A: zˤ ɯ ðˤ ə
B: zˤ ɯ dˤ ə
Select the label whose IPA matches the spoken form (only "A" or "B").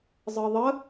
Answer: A